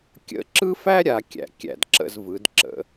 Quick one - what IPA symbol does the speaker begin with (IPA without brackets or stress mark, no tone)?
kʲ